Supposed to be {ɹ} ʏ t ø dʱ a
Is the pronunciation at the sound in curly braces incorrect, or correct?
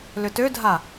incorrect